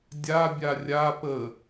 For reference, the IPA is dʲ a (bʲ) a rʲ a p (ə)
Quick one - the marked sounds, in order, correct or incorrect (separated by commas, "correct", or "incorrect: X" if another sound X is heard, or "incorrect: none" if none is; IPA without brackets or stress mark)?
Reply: correct, correct